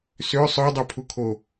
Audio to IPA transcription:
s ø sˤ œ dˤ ø pʰ u kʰ o

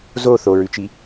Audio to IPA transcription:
z o θ o ɹ ʉ t͡ʃ i

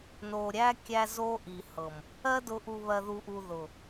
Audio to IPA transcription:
n o˨ ɾʲ æ˦ kʲ æ˦ z o˦ ʔ i˨ h ɤ˨ m | ɜ˦ d ʊ˨˦ ʔ u˨ β ɜ˨ ð u˨ ʔ u˨ ð ʊ˨

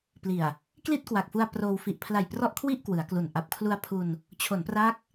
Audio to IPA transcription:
p l i˨˩ a̯ | k l i˥˩ t̚ k w a˨˩ k̚ f u˧ a̯ p r oː˧ w f i˨˩ ʔ pʰ l a˨˩ j p r ɔ˥˩ ʔ kʰ w i˥˩ ʔ k w ɯ˩˦ a̯ k l u˨˩ n ʔ a˨˩ p̚ kʰ l u˧ a̯ pʰ u˧ n | t͡ɕʰ o˩˦ n p r a˦˥ k̚

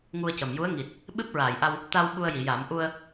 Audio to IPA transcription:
ŋ u˧ ə̯ c ə˨˩ m j u˧˥ ə̯ ŋ i˨˩ t̚ | ɓ ɨ˦˥ p̚ ɹ aː˨˩˨ j ʔ a˧ w | t̪ a˧ w ɓ u˧ ə̯ j i˨˩˨ j a˨˩˦ m ʔ u˧ ə̯

